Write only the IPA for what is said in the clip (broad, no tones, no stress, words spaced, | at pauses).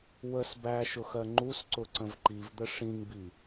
wəs bæʃʊxɜ ŋ͡ǃusǀʊǀə̃v ǃivd̪ə ʂĩŋbi